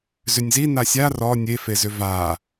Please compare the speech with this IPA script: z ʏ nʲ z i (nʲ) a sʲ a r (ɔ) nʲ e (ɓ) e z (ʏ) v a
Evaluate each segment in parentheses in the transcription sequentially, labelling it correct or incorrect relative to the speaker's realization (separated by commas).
incorrect, correct, incorrect, correct